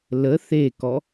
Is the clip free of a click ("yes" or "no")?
yes